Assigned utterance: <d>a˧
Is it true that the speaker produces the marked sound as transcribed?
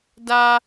yes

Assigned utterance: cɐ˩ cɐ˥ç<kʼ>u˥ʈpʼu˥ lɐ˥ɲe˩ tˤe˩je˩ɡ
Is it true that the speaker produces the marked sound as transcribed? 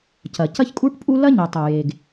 yes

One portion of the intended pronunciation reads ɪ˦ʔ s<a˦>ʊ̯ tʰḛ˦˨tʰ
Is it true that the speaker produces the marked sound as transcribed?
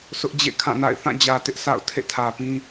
no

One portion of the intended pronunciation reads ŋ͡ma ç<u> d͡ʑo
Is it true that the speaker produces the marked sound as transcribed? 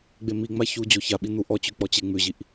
yes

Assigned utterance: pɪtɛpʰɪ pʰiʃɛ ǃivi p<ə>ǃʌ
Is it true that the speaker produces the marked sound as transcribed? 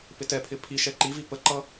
yes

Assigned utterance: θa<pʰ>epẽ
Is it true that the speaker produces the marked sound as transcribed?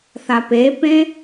no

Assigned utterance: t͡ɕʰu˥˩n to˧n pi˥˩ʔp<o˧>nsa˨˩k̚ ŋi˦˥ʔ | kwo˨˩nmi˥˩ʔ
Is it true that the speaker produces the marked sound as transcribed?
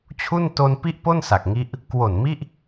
no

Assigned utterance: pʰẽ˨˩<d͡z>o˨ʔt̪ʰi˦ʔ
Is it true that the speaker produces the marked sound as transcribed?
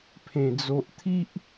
yes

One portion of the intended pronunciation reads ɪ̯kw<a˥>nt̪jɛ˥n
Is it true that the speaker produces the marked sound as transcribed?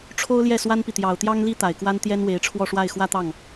yes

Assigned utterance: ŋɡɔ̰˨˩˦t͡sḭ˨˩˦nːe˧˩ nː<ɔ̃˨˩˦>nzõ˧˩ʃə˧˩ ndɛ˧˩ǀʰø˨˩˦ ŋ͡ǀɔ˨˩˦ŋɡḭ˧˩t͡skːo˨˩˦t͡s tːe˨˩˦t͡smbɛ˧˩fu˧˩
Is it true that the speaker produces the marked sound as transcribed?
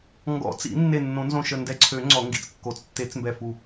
no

